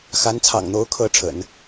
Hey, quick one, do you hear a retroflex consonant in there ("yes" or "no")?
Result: yes